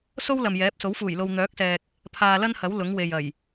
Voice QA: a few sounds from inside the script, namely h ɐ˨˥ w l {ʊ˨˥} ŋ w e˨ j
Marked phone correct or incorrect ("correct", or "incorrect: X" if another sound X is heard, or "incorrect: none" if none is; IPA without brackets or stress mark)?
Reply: correct